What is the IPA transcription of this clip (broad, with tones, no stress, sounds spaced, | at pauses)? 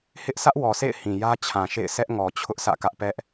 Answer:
h ɪ˦ ʔ s ä˦ ʔ w ɔ˨ s ḛ˦˨ ɪ̯ h ĩ˨ j ä˦ t͡ɕʰ ã˨ ʃ ḛ˦˨ ɪ̯ sʰ ɛ˦ ʔ ŋ ɔ˨ t͡ɕʰ ʊ˦ ʔ sʰ ä̰˦˨ k ä˦ ʔ p ɛ˦ ʔ